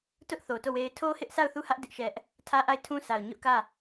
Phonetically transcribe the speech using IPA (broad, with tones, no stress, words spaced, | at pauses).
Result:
tʊ˦ʔθo˨to˦˨ we˦ɪ̯ tʰo˦ hɪ˦ʔsa˦˨ʊ̯θu˦˨hä˦ʔ dɪ˦ʔʃɛ˦ʔ | tʰä˦ʔa˦˨ɪ̯tʰũ˦sʰa˨ʊ̯ ɲʊ˦ʔkä˦˨